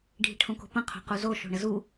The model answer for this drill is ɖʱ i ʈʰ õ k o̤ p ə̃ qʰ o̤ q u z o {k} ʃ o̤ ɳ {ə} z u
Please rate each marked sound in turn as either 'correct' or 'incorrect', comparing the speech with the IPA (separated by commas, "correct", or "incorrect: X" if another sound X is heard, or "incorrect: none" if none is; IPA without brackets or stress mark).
incorrect: none, correct